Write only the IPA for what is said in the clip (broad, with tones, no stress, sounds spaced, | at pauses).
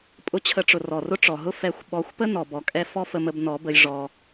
pʼ ʊ˦ t͡ɕʰ ə˧ ʈ͡ʂ ʊ˨ r ɔ˨ r ʊ˦ ʈ͡ʂ ɔ˨ ɦ ʊ˦ f ɛ˨˦ xʷ ɓ ɔ˨˦ xʷ p ə˦ n ɔ˨ b ɔ˨ kʼ ɛ˦ f ɔ˦ f ə˧ m ə˧ b n ɔ˨˦ b ə˧ j ʐ ɔ˧